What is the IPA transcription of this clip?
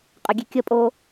qʼ ə ɡʲ e kʲ ə pʼ o

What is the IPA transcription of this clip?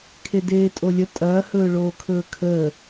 kʰ e d eː tʼ o lʲ ə tʼ ɐː h ɵː ɭ oː kʰ ɵː kʰ əː

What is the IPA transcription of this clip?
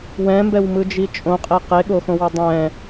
w ɛ̃ m b ɛ w m ɯ d͡ʒ i t͡ʃʼ õ qʼ e q e ɠ o x õ w ʌ dˤ ɛ̃

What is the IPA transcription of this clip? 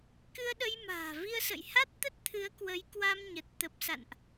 k ɨ˧ ə̯ ɗ ə˧ j m a̤ː˨˩ v i˧ ə̯ s ə̰˧˨ j h a˦˥ t̚ t̪ ə˦˥ t̚ t̪ʰ ɨ˨˦ ə̯ k w ə˨˦ j k w a˧ m ɲ ə˨˩ t̚ t̪ ə˨˩ p̚ s a̰˧˨ n ʔ

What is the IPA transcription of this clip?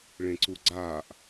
ɭ ẽ ǀ u ɡ͡ǀ aː ʔ

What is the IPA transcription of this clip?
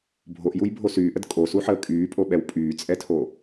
bʱ o ʔ j u j bʱ o s yː ʔ ə d kʼ o s u ħ əː kʼ yː pʼ o ɓ ɛ w pʼ yː t͡sʼ ɛ tʰ o

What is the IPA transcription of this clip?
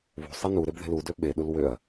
β ṳ sˤ i n u ɾ e b ð e̤ l u d ø ɓ e ɗ u l w ø ɐ̯

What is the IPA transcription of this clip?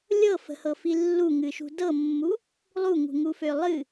lʲ ɤ f ə̤ h ɤ f i lː u ŋ ɨ ʃ ṳ d ɤ mː u | lˠ u ŋ ṳ ŋ u f ø lˠ ɨ

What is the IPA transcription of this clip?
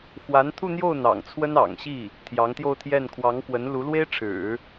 x w a˧˥ n t̪ʰ u˥˧ n̪ j o˥˩ ʊ̯ n̪ ɑ̰˨˩ ŋ t͡sʰ w ə˥ n ɑ̰˨˩ ŋ ɕ i˥˩ | t̪ʰ j ɑ˧˥ ŋ t̪ j o˥˧ ʊ̯ t̪ʰ j ɛ˥˩ n kʰ w ɑ˧˥ ŋ k w ə˧˥ n l u˧˥ l w e˥ ɪ̯ ʈ͡ʂʰ ɻ̩˨˩˦

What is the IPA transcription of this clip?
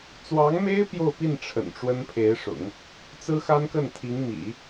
t͡s w ɑ˧˥ ŋ m e˥ ɪ̯ p j o˥˧ ʊ̯ p i˥˩ n ʈ͡ʂʰ ə̰˨˩ n ʈ͡ʂ w ə˥ n pʰ e˧˥ ɪ̯ ʂ ʊ̰˨˩˦ ŋ | t͡s ɹ̩˥ x a˥ n k ə˥˩ n t̪ʰ i˧˥ ŋ m ḭ˨˩˦

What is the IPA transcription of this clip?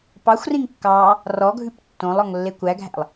p ɑ xʷ r ĩ ŋ kː ɑ | r ɔ ɡʱ ʉ p tː õ lˠ ɔ ŋ lː e kʷ æ ɡʱ æ̰ lˠ

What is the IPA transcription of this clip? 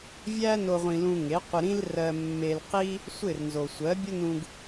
vʲ æ˥ n o˧ ʁʷ ĩ˧ l ũ˧ ŋ e˩˥ qʷ ɪ˧ ɾ ĩ˥ l r ɜ˧ mː e˧ l q i˥ | sʷ ɪ˥˩ r n z o˩ sʷ ɜ˩˥ bʲ ə˥ n ũ˧ ɡ

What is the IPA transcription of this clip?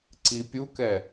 ǀ i pʲ u k ɛ

